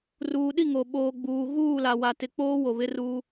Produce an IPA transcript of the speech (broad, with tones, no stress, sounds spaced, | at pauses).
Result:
r uː˨ ɗ i˦˨ ŋ o˨ ɓ oː˨ ɡ͡b uː˨ ɣ uː˦˨ l a˨ w a˨ t ɪ˨˦ k͡p oː˦ w o˨ β ɪ˦ r uː˦